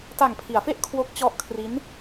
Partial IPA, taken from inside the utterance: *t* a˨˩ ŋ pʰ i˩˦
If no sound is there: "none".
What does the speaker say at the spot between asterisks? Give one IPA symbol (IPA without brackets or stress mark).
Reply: t